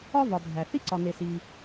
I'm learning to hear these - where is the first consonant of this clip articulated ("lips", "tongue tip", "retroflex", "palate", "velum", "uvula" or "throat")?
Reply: lips